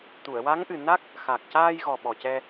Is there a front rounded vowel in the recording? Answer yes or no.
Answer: no